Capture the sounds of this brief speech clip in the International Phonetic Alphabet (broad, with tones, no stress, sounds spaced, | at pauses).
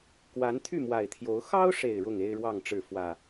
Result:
k w a˨˦ n t̪ʰ y˥˨ m w a˨˩ ɪ̯ t̪ʰ j o˨˦ ʊ̯ x ɑ˦ ʊ̯ ʂ e˨˩ ɪ̯ ɻ ʊ˥˨ ŋ e˦ ɪ̯ ɻ w ɑ˥˨ ŋ ʈ͡ʂ ɻ̩˥˨ f w ä˨˩